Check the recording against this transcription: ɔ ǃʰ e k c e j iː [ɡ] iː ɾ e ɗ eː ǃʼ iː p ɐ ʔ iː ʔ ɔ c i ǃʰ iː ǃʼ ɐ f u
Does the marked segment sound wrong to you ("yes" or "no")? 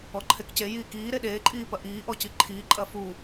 yes